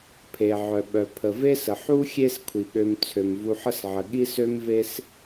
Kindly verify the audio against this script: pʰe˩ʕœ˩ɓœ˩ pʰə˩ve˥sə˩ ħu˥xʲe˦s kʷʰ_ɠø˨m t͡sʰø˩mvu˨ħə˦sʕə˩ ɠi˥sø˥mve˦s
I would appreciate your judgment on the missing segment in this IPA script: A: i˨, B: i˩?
B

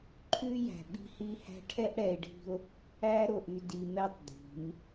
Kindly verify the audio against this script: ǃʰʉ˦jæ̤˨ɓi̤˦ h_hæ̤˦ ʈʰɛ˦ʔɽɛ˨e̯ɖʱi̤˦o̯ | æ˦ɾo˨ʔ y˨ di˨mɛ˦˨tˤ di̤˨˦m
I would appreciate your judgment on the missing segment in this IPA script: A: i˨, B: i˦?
B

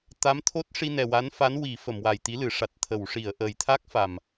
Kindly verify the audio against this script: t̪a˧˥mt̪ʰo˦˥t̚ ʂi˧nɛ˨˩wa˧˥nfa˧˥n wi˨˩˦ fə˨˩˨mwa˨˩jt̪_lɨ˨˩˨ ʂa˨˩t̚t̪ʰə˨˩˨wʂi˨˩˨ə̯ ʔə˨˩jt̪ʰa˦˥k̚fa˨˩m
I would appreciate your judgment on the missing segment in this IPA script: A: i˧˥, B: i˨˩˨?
A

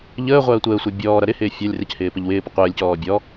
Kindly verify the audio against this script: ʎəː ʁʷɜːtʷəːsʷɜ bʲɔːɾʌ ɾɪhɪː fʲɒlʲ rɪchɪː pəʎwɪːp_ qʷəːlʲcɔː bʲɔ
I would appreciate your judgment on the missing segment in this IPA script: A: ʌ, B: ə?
B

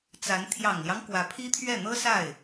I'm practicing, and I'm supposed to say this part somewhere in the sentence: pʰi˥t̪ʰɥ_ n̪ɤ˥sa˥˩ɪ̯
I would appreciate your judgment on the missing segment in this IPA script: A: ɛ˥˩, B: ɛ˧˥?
A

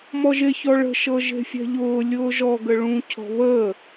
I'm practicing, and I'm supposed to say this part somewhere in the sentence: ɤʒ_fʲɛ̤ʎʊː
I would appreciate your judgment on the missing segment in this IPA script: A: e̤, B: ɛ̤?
A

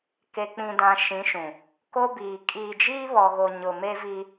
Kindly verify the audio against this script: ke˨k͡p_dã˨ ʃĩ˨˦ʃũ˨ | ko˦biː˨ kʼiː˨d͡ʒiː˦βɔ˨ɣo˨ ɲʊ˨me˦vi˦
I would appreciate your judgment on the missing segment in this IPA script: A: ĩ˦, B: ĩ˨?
B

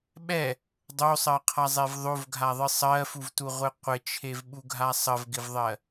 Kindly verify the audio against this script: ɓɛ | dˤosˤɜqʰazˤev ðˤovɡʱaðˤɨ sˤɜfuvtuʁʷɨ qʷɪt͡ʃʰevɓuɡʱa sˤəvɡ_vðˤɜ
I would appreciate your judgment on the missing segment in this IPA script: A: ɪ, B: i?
A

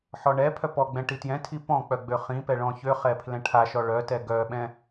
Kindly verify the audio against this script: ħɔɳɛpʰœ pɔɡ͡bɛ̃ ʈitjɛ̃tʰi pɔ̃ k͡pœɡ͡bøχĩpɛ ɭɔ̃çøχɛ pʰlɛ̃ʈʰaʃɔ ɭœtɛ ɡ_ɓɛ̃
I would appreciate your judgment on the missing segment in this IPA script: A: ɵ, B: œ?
B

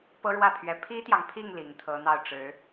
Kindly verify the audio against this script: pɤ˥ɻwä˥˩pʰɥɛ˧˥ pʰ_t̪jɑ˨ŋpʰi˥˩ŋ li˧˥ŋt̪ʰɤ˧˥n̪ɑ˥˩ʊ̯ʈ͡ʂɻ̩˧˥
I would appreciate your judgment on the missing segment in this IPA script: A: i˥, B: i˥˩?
A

